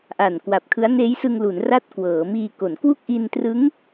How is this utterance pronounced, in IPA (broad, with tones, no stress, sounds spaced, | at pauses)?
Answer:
ʔ a˨˩ n k w a˨˩ p̚ kʰ ɯ˦˥ a̯ n eː˦˥ j s ɯ˧ ŋ l u˩˦ n r a˦˥ t̚ k w ɤː˩˦ m iː˧ k o˩˦ n k w u˥˩ k̚ ʔ i˧ n t r ɯ˦˥ ŋ